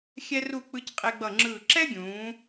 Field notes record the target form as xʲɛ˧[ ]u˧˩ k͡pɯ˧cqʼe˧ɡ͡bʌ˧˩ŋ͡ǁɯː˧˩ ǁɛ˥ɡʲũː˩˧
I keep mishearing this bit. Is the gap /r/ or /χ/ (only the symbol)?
r